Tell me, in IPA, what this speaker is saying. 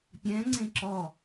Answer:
pʲ ɛ̃ ŋ͡ǀ ẽ ǁ ɔ

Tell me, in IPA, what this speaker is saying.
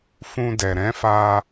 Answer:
f ũ˧ d ɛ˨ ɾ ɛ̃˨˦ f a˧

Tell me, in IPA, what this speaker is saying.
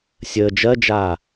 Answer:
sʲ əː d͡ʒ ɜ d͡ʒ aː

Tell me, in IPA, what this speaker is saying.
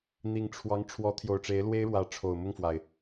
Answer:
n̪ i˨˩ ŋ ʈ͡ʂʰ w ɑ˧˥ ŋ ʈ͡ʂʰ w ɔ˧˥ t̪ʰ j o˨˩ ʊ̯ ʈ͡ʂ e˧˥ ɪ̯ l w e˥ ɪ̯ ɻ w ä˧˥ ʈ͡ʂʰ o˨˩ ʊ̯ m ʊ˥˩ ŋ f w a˩ ɪ̯

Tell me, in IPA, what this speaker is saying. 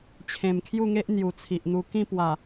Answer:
t͡ɕʰ ẽ˨˩ m kʰ j u˥˧ ŋ e˦ ʔ n̪ j u˨˩ t͡sʰ i˨ ʔ n̪ u˧ k ĩ˥˧ p w a˨˩

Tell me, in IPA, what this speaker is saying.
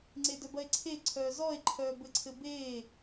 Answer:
ŋ͡ǀ e d œ b ɐ e̯ ǀʰ e ǀʰ œː z ɔ e̯ ǃʰ œː b ɘ ǀʰ ɘ b eː

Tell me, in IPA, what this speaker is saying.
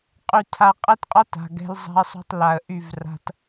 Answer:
qʼ y˨ tʰ a˨ qʼ ɛ˦ t qʼ ɒ˦ t a̤˨ ɡ ɛ̤˦ l zˤ a̤˦ ə̯ sˤ o̤˦ tˤ l a˨ ə̯ ʔ y˦˨ v r a̤˦ t

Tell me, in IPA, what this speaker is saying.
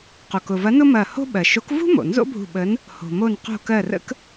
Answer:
q o˩ k ʊ˩ v ɐ˨˥ n ʊ˥ m ɐ˧˩ h o̤˥ ɓ ɜ˩ ʃ o˨˥ k v ṳ˥ m o̰˩ n z o̰˥ bʱ ṳ˧˩ ɓ ə˨˥ n | h o̤˩ m o˧˩ n q o̤˧˩ k ɜ˧˩ r ə̰˥ k

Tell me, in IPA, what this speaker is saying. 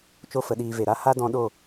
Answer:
t͡ʃ o˦ f ə˨˦ ɗ iː˧ v e˨ ɾ a˦ h a˦ d ɔ̃˧ ɗ o˦˨

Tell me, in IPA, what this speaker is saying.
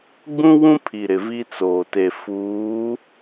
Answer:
ɡ͡b ũ˦ w ũ˦ pʰ i˨ ɾ ɪ˨ v i˦ t͡s oː˨ t e˨ f uː˨˦

